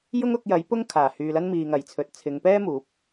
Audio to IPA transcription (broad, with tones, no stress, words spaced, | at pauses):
jʊ˥ŋʊ˨˥k̚jɐ˨˥j pʊ˥ŋ kʰaː˨˩hyː˨lɐ˥n miː˨ŋɐ˨˩jt͡sʰɵ˨t̚ t͡sʰɪ˨˧ŋpɛː˥muː˨˥p̚